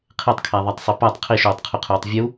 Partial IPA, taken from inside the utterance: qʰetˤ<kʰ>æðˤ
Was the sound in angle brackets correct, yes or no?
yes